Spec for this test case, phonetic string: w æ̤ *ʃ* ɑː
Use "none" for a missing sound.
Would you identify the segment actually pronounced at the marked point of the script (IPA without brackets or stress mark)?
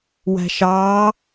ʃ